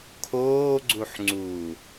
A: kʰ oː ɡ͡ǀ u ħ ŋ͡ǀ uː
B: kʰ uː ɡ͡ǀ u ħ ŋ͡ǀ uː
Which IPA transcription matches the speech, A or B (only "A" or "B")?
A